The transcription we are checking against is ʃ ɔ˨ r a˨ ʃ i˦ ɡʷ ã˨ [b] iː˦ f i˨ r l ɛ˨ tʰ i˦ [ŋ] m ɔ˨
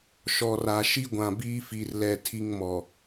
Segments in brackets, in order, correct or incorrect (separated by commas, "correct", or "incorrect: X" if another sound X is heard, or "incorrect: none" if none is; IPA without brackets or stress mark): correct, correct